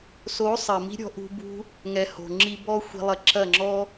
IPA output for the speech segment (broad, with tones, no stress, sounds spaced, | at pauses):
s o˨˦ sˤ ɐ˨ m i̤˦ ɾʲ ɔ̤˧ ʔ ṳ˧ b ṳ˧ | ŋ ɛ˧ h o̤˨ ŋ͡ǁ i˦ b ɔ˦ xʷ i̤˧ lˠ ɐ˧ ǁ ɐ˦˨ ŋ͡ǁ ɔ˦